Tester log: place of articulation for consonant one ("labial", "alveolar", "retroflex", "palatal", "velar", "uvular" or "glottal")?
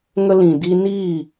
velar